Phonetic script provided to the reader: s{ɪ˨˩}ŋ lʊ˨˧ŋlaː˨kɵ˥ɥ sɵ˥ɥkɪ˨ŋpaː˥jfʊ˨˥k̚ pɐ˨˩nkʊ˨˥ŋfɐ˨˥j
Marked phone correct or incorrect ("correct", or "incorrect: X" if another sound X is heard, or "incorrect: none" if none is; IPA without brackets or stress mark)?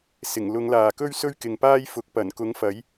correct